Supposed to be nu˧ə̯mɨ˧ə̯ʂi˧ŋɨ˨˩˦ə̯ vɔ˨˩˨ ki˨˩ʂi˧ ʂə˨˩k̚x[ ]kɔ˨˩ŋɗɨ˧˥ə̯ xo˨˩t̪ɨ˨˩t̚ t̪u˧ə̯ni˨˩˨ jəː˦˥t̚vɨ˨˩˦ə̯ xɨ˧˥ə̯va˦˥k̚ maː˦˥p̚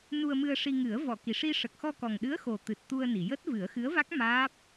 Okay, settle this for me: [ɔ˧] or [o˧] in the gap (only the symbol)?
ɔ˧